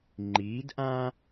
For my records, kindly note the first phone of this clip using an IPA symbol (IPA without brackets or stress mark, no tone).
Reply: ŋ͡ǃ